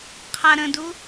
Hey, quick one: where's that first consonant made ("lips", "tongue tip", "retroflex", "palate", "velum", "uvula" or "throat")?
uvula